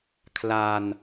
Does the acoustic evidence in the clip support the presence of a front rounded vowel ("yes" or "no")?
no